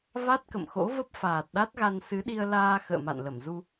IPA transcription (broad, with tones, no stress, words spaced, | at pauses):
va˦˥t̚kə̰˧˨mxo̰˧˥və˦˥p̚ faː˨˩t̚ɗa˦˥t̚ɣa˧n sɨ˨˦ɗi˧ə̯laː˧ xə̰ː˧˨ma̰˧˨nlə˧˩mzu˧